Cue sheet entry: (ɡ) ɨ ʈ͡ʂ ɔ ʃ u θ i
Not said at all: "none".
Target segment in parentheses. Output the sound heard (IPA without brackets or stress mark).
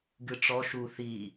ɡ